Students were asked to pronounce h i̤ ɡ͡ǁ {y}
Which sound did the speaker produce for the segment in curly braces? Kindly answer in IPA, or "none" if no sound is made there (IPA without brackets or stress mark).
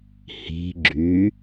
y